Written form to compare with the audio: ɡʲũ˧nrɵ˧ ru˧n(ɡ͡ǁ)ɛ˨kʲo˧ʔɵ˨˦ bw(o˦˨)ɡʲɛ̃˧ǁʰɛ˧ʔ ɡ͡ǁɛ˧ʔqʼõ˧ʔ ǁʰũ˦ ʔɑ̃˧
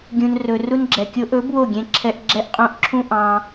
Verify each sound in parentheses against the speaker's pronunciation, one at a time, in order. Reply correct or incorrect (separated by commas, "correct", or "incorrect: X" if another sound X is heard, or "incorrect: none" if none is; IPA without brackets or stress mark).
correct, correct